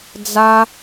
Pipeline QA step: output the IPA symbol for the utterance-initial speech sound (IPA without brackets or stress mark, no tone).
d͡z